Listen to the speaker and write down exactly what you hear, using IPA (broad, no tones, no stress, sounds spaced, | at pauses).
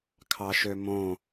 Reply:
kʰ ɑ ʃ ø m õ